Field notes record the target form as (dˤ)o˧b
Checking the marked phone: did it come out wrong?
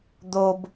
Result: yes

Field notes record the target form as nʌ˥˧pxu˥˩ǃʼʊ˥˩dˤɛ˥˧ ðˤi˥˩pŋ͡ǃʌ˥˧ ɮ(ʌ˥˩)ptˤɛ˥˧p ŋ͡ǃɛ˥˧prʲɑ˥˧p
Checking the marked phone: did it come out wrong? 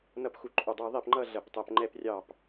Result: no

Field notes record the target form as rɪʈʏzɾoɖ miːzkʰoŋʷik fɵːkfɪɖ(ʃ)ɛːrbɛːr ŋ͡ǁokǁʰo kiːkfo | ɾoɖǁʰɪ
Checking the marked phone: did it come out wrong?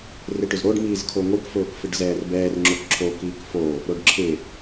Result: yes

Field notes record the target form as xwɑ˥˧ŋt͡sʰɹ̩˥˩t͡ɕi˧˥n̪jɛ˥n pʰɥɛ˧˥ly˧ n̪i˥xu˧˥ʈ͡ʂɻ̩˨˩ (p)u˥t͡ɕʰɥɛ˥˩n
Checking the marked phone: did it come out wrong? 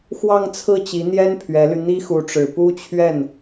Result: no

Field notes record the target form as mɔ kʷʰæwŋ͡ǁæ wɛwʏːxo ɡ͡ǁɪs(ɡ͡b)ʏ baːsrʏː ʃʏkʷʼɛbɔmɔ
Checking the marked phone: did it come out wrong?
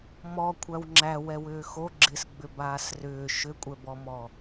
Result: no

